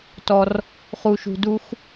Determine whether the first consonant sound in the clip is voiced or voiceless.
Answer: voiceless